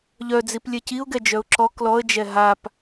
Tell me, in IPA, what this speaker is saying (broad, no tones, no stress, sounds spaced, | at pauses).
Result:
ʎ œ d͡z i p lʲ ɛ c i ʊ̯ ɡ ɛ d͡ʒ œ ʊ̯ ǁ ɔ k l ɔ ə̯ d͡ʒ ɛ ɦ a p